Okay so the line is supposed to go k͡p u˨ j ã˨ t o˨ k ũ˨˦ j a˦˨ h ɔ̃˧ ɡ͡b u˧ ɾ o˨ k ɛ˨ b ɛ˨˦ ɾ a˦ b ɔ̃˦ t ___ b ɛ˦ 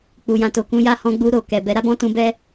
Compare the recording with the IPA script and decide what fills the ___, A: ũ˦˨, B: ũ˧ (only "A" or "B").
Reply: B